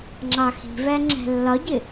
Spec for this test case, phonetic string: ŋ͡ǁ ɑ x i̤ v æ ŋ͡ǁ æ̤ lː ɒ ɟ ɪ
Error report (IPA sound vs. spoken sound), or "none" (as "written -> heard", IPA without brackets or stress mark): none